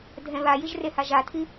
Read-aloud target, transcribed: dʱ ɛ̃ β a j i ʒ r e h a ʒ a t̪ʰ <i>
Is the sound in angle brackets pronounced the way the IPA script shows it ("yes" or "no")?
yes